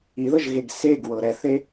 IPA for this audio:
i ð ɤ ʒ ɣ e ɡ s e ɡ w ɤ ɾ ɛ θ e

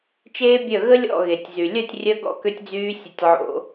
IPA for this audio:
t͡ʃ eː˦ bʲ œ˦˨ ɣ ə˦ lʲ ɔ̰˦˨ ɣ e˨ tʲ z y˨ lʲ œ˦˨ tʲ rʲ œ˧ ɡ ɔ̰˧ k ø˧ tʲ d͡z yː˧ sʲ ə˦˨ tʲ ʕ o̰˦

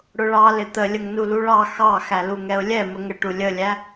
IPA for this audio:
ɽ ʊ ɭ ɑ l ɪ t̪ ə lʲ ə ŋ n u l u ɭ ɑ x ɑ x æ l u ŋ ɛ ʊ̯ lʲ ɛ m ə ŋ ə ʈ u lʲ ə lʲ æ

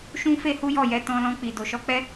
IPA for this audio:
ʃ ũ˦ f e˦ h u˦ j ɔ˦˨ j ɛ˨˦ t ɔ̃˧ l ɔ̃˧ k͡p i˨ d o˨ ʃ ɔ˧ k͡p ɛ˦

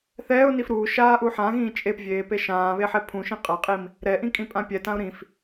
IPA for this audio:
θ ɛː ʊ̯ n i f ɾ uː ʃ aː ʔ u ħ ã ɣ ĩː t͡ʃʼ e p vʲ eː p e ʃ ãː β e ħ ɛ pʰ ũ ʃ ĩ qʼ a qʼ i m | ɾ ɛ ʔ ĩ kʼ ĩ pʼ ã pʲ ɛ t ã ʊ̯ ɾ ĩ f

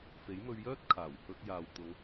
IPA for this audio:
f e˨˥ j m ɵ˧ ɥ j œː˥ t̚ kʰ aː˨˩ w h ɵ˧ t̚ j aː˨ w t̪ ʊ˨˧ ŋ

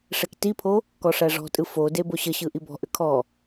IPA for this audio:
ʂ ɛ k t i pʰ o | k ɔ ʂ æ ʐ ɔ̤ tʼ ɯ f o d e b o ɕ ə ɕ ɯ ʔ i b ɔ̤ ʔ ʏ kʰ ɔ

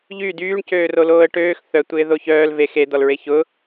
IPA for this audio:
ʎ y d yː ɳ c øː r o l oː ə̯ ʈ øː x θ œ tʷ ɪː ð o ç œː l v e x e d̪ ɔ l ɹ e ç ʊ

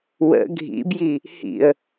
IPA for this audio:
w ə̰ ɡʱ ḭ b j i | h ḭ ə̯

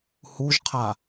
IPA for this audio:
h u ʒ qʰ a

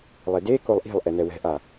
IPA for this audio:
lˠ e d e k o lˠ ʔ i̤ lˠ ʔ ɛ n ɛ w ɛ̤ ʔ a

